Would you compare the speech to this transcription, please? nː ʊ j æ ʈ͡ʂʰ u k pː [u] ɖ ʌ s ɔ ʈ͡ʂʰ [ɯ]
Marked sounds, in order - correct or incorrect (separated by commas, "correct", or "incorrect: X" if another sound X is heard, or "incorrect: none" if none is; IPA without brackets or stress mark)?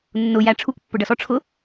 incorrect: ʊ, incorrect: ʊ